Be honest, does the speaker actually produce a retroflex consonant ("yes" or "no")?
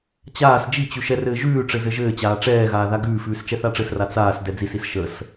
yes